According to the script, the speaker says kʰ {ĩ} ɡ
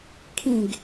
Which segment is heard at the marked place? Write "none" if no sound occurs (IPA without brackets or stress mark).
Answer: ĩ